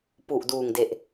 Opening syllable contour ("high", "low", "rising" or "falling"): low